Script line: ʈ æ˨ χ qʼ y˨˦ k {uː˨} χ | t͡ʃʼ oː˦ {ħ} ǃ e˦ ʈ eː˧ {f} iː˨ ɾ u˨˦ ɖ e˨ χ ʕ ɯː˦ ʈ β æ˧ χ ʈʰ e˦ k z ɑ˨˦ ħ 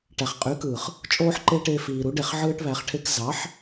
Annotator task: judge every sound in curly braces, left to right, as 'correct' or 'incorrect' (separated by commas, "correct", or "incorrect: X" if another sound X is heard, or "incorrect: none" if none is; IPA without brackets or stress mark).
incorrect: ɯː˨, correct, correct